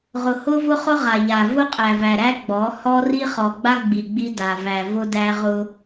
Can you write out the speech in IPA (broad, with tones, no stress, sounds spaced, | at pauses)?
ʁ ʊ˨ h ʊ˦ v ʊ˦ χ ʊ˦ ʁ a˨ ʎ a˨ v ʊ˦ qʼ æ˨ v æ˨ ɾ æ˦ ɡ͡b ɔ˨˦ h ɔ˦ r i˦ χ ɔ˨ ɡ͡b a˦ ɡ͡b i˨ ɡ͡b i˦ d a˨ v æ˨ v ʊ˦ d æ˦ ʁ ʊ˦